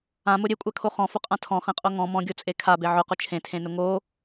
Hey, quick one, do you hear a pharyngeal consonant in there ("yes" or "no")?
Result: yes